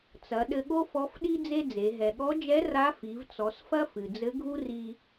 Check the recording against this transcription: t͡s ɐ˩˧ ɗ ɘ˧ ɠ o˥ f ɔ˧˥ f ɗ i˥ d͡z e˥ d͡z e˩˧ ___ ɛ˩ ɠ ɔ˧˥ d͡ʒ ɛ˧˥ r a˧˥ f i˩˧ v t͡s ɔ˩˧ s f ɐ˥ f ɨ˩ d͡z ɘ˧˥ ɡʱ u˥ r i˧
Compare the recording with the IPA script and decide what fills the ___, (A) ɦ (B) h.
A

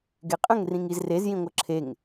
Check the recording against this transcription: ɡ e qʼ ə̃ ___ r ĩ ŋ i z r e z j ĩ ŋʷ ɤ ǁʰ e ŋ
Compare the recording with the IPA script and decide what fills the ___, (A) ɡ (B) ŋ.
B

